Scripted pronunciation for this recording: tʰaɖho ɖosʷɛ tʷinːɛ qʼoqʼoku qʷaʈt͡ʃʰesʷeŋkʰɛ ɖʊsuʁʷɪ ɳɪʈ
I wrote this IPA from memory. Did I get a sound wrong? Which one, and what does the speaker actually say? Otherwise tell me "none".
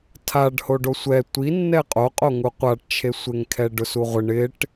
k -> ŋ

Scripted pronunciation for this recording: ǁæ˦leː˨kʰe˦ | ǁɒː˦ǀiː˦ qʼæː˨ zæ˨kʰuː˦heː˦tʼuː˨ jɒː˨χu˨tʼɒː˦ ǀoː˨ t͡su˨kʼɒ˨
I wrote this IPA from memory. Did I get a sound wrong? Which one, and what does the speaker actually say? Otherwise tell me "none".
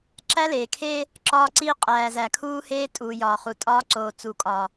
none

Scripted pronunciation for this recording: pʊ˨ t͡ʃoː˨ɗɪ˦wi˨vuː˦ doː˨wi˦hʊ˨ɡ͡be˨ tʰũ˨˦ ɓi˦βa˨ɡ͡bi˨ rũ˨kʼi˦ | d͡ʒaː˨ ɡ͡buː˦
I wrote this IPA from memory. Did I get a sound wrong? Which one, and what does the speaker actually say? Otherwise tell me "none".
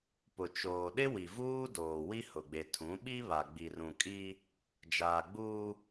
none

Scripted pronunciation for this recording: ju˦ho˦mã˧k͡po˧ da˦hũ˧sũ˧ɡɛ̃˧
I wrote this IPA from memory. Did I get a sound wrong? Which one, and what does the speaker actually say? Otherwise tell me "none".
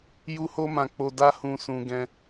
none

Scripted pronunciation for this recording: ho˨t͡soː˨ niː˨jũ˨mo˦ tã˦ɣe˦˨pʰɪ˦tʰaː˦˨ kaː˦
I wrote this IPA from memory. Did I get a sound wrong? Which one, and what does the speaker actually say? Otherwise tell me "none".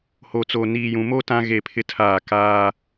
none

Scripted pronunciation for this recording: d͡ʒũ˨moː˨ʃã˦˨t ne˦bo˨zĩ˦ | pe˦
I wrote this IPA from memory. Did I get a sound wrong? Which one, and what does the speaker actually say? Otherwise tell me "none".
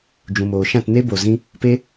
none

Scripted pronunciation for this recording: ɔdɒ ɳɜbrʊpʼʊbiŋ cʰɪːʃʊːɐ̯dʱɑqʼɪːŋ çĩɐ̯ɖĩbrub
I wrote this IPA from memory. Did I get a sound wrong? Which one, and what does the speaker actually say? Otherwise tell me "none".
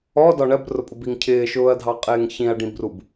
none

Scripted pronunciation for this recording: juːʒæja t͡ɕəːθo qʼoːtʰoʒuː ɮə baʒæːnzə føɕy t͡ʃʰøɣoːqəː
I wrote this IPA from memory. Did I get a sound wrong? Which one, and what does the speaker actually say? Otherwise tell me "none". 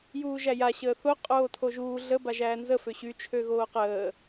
t͡ɕ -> ɕ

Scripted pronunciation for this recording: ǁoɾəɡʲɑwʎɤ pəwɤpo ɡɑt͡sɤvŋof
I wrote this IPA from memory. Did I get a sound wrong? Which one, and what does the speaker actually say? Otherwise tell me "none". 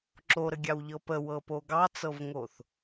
f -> θ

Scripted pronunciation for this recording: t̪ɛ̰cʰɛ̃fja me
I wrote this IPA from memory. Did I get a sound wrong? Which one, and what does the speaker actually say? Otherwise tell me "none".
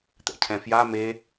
none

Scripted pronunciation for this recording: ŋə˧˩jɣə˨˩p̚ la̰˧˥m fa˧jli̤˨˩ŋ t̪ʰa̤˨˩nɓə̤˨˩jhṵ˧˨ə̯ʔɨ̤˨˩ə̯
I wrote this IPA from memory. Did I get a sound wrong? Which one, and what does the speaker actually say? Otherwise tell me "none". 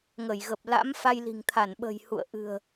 a̤˨˩ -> a˧˩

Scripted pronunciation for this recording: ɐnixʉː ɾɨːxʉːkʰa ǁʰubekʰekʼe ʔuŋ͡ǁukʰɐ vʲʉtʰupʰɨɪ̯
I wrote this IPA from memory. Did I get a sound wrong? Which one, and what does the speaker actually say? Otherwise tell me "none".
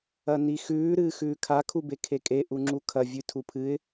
ǁʰ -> kʰ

